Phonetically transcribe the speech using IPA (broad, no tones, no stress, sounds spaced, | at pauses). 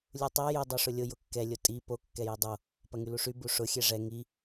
lʲ u tˤ ɛ j ʏ dˤ u ʂ ʊ lʲ ʊ j ʊ kː ɛ lʲ ʊ tʼ i p o kː ɛ j i dˤ o | p ɐ ŋ y l u ʂ y b u ʂ ʊ xʲ ɛ ʐ ɛ ŋ i